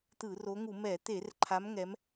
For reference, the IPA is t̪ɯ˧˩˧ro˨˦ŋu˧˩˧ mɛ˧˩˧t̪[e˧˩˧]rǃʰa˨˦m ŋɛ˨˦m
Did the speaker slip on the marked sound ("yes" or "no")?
no